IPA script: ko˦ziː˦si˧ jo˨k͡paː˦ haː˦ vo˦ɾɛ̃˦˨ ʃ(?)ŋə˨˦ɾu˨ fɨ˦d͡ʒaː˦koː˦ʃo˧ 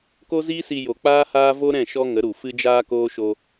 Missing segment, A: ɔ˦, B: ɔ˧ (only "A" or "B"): A